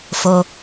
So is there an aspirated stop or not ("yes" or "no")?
no